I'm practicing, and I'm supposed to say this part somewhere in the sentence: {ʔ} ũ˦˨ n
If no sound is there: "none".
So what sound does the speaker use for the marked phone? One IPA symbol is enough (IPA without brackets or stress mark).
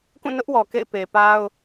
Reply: k